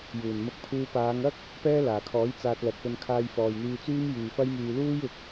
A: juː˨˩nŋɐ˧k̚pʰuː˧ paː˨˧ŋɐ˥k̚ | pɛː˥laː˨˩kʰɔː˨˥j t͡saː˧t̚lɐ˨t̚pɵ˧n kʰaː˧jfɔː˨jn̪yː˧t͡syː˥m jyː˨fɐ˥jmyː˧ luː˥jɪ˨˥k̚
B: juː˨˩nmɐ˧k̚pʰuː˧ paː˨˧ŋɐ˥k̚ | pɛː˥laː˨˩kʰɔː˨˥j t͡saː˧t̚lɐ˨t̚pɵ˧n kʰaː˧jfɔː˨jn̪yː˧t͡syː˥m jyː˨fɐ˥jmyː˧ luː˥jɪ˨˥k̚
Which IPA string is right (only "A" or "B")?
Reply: B